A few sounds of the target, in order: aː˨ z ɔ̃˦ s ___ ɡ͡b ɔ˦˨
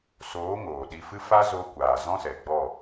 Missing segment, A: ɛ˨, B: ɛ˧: A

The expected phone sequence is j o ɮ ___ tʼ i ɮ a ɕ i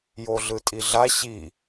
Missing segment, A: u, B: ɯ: B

